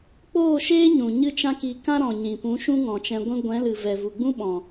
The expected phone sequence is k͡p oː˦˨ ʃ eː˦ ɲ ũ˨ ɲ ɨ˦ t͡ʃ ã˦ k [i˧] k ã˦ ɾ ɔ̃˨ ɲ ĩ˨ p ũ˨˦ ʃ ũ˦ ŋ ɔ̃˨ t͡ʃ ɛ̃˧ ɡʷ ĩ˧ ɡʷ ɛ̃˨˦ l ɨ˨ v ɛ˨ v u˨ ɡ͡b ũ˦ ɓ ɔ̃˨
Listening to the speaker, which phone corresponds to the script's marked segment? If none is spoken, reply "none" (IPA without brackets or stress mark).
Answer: i˧